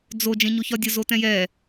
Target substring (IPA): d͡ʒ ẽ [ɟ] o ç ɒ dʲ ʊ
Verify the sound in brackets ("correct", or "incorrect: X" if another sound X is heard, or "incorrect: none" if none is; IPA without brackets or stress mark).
incorrect: ɲ